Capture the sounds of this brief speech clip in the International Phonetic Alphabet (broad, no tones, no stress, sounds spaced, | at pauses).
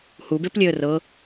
h u b e p lʲ e ə̯ r ɤ